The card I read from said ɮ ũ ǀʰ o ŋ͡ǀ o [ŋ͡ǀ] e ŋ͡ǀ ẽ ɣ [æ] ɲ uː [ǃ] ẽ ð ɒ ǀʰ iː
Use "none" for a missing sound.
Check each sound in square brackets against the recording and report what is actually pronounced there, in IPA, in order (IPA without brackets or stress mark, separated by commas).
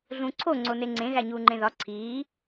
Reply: n, æ, ŋ͡ǃ